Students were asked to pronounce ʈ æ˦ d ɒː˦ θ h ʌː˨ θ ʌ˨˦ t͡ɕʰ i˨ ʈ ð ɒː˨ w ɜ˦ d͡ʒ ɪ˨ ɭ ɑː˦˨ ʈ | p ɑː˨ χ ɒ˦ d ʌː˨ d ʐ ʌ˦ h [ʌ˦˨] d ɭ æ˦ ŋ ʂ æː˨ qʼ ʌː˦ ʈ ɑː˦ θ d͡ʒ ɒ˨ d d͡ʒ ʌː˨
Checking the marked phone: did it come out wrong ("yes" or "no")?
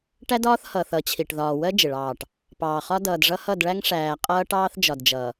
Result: no